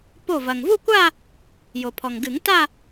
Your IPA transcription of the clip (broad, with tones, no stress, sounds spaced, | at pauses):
p o˧˩ v ɐ˩ ŋ v u˥˧ kʷ a˥˧ | j o˩ pʰ ɔ˩ ŋ ɡ ɨ˨˩˦ ŋ t a˥˧